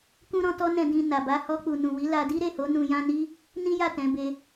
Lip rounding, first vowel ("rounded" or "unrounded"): rounded